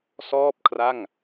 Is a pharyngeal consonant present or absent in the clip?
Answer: absent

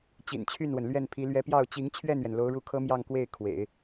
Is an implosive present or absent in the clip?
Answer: absent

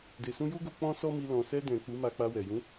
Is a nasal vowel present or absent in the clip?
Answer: present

